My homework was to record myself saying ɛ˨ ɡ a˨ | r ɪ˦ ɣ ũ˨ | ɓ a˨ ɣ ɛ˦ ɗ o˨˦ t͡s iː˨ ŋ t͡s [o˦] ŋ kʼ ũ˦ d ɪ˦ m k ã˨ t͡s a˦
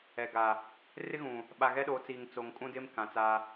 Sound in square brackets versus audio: incorrect: o˨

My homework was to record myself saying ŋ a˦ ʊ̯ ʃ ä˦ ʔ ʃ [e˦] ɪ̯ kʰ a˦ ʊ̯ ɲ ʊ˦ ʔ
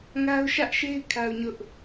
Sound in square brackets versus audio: correct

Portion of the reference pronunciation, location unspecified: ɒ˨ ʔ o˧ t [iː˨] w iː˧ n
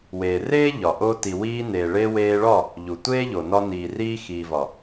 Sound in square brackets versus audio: incorrect: i˨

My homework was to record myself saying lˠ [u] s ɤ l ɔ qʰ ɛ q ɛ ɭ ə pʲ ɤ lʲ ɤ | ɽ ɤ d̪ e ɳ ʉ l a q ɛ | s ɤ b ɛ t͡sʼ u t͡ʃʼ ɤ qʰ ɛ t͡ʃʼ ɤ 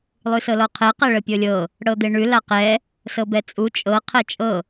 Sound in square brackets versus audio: incorrect: ʉ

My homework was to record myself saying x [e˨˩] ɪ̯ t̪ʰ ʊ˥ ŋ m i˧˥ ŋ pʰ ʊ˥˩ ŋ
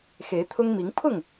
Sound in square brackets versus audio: incorrect: e˧˥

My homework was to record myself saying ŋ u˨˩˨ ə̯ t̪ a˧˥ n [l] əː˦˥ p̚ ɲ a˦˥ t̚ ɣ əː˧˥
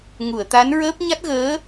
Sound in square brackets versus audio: incorrect: ɹ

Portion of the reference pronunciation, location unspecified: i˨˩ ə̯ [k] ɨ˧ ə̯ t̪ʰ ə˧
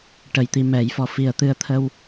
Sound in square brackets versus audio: incorrect: t̪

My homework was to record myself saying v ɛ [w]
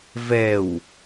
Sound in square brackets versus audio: correct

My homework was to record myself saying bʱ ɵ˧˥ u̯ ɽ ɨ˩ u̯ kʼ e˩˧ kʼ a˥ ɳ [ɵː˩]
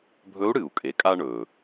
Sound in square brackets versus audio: correct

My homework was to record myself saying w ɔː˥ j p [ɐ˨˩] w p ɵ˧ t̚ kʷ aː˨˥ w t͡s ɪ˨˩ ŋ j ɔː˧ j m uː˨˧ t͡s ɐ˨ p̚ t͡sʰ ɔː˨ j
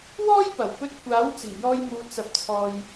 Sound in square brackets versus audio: correct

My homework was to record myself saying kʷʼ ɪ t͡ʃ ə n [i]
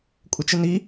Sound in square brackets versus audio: correct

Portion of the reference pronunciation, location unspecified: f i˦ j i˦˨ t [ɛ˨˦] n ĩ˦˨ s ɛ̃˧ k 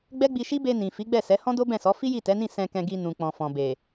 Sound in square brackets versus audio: correct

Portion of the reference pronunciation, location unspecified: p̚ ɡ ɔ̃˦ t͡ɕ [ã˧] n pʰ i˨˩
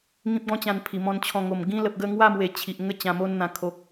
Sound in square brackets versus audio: correct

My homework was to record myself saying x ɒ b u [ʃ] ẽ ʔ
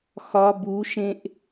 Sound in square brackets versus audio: correct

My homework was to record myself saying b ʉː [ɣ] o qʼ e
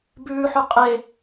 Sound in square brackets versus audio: incorrect: ħ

